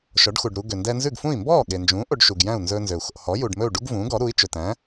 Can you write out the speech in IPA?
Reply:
ʃɔ˩˥ɖxu˩ɖɾu˧ ɡø˩ndɛ˧nzʉ˥˩ɡfũ˥˩i̯ mbɔː˥˩ɠe˩nd͡ʒũː˩˥ ʔo˧ɖʃu˩ɡjæ̃˥˩u̯ nzɵː˧nzø˩u̯ xo̰˩hɔ˩˥ ju˩ɖmɵ˥˩u̯ ɖu˥ɡvũː˩˥ɡɔ˩˥ ɾu˩˥i̯ t͡ʃɵ˩tæ̃˩˥

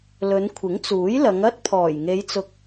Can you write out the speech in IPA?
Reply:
lɵ˨˧nkʷʰɪ˨˥ŋt͡suː˨˥jlɐ˨˧ŋ ɐ˥t̚pʰɔː˨˩jŋe˨˧jt͡sʊ˨k̚

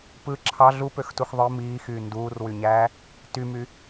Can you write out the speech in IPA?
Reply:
pɯ ǁʰɑ ɮupøxtux ðˤɯ miːxyː nduːrwyɲæː | tymy

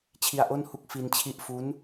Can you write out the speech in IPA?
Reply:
t͡ɕʰi˧a̯ʔo˥˩nhu˥˩k̚ fi˧nt͡ɕʰi˦˥ʔ fu˦˥n

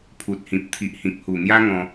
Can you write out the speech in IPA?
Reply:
pʰu˨t̚hĩ˨p̚ t̪ʰi˨ʔhĩ˨k̚hu˨˩n̪ja˦ ŋɔ̃˧

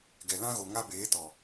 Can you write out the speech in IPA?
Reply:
ɡɛ˨lã˦ɣo˨ ŋa˦beː˨˦tɔ˨

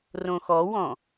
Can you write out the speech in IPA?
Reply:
rõxɔwɔ̃

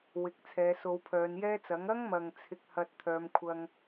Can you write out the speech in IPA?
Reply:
wɪ˨˥k̚t͡sʰɛː˨˧ so˨˧wpʰœː˨˧njɛː˥t͡sɐ˨˥ŋ ɐ˥ŋmɐ˨ŋ t͡sʰɪ˧k̚hɐ˧t̚ t̪ʰœː˨˧mkʷʰɐ˧ŋ

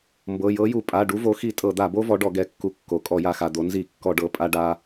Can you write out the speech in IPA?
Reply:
mbɤ˩˧˩jɤ˨˦ju˧˩˧ pʼa˩˧˩ɖu˨˦vo˨˦xi˧˩˧ tʼɤ˧˩˧d̪a˧˩˧bo˦˥ vɔ˨˦ɖɔ˧˩˧ ɡɛ˩˧˩kːu˨˦kːo˩˧˩ kʼɔ˧˩˧ja˧˩˧xa˩˧˩d̪o˨˦ nzi˧˩˧kːɔ˧˩˧ɖɤ˩˧˩ pʼa˦˥ɖa˦˥

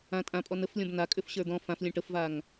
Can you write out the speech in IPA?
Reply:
ã tʼãpʼɔ nəflʲɔ̃b nakʼʏfɕə˞ d̪ɔ̃ fãflʲə̃ ʈəfvaŋ

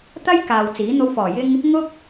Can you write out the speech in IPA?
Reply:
t̪ɐ˥j kaː˨wt͡siː˨˥n̪o˧w fɔː˨˩jɪ˧ŋ | ŋʊ˥k̚

